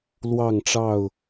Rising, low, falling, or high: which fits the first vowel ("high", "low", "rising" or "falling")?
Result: falling